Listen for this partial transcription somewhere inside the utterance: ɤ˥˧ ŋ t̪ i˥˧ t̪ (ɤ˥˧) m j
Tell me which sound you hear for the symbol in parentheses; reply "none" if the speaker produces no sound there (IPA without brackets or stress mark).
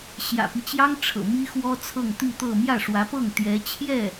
ɤ˥˧